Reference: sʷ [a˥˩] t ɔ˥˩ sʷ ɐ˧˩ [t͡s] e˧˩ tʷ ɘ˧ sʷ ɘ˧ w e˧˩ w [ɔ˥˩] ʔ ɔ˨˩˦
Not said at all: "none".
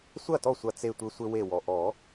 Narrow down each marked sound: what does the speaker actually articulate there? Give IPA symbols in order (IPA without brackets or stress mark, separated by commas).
ɐ˥˩, t͡s, ɔ˩